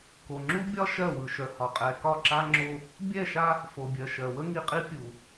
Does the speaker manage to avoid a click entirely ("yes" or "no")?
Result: no